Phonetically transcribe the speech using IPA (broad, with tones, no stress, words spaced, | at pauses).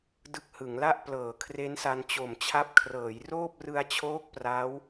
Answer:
dɯ˦˥k̚hɯ˩˦ŋla˥˩ʔ plɤː˩˦ kʰre˦˥nsa˧n t͡ɕo˨˩mt͡ɕʰa˦˥p̚kʰrɤː˩˦j roː˥˩p̚rɯ˧a̯t͡ɕʰoː˦˥k̚ pra˦˥w